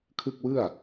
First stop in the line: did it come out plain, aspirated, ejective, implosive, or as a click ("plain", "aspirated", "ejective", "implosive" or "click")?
aspirated